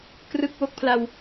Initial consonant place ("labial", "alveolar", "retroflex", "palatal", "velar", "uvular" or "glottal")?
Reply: velar